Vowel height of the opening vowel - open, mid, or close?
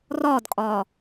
open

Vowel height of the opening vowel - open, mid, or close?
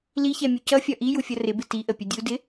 close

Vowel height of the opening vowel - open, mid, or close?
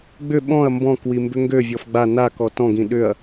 close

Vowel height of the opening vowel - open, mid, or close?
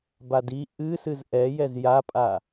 open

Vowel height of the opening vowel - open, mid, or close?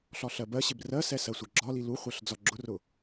open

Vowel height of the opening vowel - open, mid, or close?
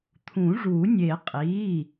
close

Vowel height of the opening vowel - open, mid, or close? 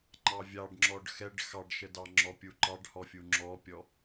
open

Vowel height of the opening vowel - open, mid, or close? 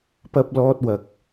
open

